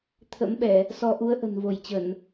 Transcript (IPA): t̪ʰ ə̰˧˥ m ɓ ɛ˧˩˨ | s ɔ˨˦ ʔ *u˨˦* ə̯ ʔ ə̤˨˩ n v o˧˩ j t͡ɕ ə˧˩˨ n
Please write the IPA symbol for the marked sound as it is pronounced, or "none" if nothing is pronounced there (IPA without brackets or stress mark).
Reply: u˨˦